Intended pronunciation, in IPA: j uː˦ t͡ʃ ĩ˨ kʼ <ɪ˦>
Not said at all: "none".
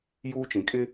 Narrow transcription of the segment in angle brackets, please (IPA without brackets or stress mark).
ɪ˦